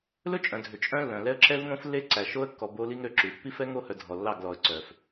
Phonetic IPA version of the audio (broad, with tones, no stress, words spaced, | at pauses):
lɵ˦t͡ʃʼœ̃˨dʱø˨ t͡ʃʼœ̃˦lːœ̃˨ lɛ˦ə̯ǁɛ˦vŋõ˦f lːe˦ǀæ˨ʃo˦ə̯kːɔ˨ bo˦li˦ŋɾø˨ǁʉ˨ pːi˦fɛ˦ ŋo˦˨hœ˨ dʱɔ˨lːɑ˦˨ɡ lɔ˨ə̯ǀœ˨f